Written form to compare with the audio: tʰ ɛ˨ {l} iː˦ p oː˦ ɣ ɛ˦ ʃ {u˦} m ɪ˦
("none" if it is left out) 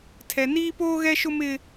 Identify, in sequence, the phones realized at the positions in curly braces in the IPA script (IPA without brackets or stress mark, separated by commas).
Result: n, ʊ˦